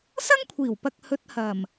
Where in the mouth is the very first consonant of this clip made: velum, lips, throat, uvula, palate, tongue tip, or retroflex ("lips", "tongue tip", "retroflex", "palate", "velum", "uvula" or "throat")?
tongue tip